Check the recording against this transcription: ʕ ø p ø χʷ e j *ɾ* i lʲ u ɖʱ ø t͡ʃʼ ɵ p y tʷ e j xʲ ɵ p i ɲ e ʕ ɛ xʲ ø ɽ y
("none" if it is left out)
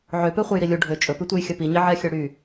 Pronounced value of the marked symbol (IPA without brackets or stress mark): ɾ